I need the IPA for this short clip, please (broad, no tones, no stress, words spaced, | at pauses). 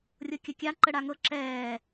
rʲɤkʲɐkʲa ǃəɽaŋɤ ǁɛː